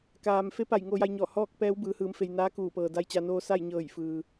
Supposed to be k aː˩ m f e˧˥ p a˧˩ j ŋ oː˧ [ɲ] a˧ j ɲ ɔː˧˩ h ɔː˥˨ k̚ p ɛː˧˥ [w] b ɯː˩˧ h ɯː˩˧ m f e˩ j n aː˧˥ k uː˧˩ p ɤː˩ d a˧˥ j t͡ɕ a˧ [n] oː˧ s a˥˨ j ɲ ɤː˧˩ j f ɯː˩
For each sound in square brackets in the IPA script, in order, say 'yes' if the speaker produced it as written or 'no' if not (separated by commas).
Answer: no, yes, yes